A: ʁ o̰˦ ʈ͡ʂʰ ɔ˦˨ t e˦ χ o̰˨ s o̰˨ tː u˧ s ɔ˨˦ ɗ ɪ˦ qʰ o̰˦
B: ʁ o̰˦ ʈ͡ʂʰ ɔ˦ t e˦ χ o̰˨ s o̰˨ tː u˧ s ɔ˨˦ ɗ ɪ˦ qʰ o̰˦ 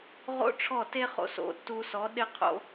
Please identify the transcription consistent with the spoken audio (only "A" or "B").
A